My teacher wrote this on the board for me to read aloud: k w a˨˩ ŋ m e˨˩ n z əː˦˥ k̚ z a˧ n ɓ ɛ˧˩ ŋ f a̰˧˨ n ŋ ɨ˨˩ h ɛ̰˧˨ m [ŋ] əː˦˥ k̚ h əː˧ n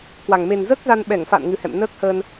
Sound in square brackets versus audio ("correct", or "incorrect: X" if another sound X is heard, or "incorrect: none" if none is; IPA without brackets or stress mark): incorrect: n